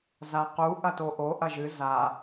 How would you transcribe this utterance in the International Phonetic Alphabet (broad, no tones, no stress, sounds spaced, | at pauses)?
z a q u ʔ ɐ t o ʔ o ʔ ɐ ʒ ɨ z a